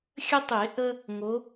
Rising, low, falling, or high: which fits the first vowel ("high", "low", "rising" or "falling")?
high